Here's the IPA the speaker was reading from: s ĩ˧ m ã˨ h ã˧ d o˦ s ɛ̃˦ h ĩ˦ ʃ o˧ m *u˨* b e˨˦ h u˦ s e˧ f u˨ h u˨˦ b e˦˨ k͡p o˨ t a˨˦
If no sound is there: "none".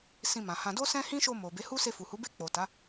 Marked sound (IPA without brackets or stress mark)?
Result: o˨